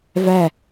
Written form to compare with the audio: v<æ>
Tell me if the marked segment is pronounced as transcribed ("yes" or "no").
yes